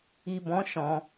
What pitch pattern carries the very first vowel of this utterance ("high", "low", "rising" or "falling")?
low